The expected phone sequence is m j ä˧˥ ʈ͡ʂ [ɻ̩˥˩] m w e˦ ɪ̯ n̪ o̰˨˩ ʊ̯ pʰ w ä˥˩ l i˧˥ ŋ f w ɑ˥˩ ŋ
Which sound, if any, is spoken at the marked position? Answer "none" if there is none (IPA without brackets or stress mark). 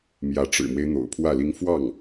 ɻ̩˨˩